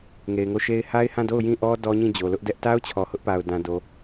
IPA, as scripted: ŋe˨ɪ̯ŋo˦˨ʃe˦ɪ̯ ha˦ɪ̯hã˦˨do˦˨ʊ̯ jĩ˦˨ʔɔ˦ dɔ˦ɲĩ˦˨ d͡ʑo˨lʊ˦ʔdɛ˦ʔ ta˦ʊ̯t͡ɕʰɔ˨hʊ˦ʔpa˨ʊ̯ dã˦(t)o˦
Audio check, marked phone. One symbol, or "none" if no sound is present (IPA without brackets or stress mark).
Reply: d